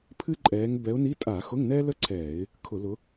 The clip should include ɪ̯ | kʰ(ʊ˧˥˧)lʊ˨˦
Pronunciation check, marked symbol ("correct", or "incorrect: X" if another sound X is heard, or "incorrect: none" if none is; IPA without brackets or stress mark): incorrect: ʊ˧˩˧